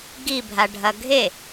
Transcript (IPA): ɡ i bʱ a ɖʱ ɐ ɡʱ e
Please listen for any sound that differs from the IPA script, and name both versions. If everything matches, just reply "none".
none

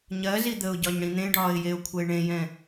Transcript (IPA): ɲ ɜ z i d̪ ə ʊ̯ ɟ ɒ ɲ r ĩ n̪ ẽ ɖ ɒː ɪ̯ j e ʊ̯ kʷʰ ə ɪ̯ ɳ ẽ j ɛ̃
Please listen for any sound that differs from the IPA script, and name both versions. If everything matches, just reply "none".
r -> ɽ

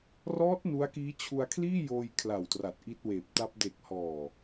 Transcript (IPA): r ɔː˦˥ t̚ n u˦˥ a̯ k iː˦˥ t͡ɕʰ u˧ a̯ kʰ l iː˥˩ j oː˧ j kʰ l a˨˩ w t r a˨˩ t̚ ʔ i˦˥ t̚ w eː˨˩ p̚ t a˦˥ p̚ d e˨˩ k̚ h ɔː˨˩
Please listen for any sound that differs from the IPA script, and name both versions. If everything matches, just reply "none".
none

